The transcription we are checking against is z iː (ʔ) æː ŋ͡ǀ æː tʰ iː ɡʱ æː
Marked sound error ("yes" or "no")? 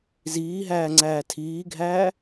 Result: yes